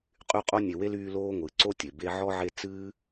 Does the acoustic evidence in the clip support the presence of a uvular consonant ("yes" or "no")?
yes